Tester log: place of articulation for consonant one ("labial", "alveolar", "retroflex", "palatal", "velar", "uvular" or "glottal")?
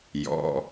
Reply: palatal